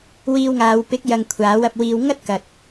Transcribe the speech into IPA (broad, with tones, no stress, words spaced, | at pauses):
wiː˧wŋaː˨˧w pɪ˨˥k̚jɐ˨ŋ kʷʰaː˨˥wɐ˧p̚wiː˧w ŋɐ˥t̚kɐ˨t̚